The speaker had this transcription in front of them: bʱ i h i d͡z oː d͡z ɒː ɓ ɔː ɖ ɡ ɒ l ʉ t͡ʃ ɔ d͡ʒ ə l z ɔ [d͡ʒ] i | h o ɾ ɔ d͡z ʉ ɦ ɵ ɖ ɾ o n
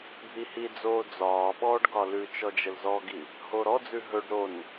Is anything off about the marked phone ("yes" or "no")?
yes